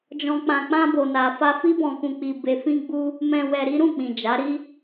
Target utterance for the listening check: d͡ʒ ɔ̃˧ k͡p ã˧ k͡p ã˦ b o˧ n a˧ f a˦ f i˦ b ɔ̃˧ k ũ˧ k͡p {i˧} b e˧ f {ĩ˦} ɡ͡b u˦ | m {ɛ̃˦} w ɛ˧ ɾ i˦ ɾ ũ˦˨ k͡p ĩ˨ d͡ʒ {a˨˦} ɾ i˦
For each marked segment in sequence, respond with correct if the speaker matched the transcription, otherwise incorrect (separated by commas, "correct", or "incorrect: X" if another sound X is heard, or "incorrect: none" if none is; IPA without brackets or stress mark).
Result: correct, correct, incorrect: ɛ̃˧, correct